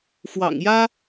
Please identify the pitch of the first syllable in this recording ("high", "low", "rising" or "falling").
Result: low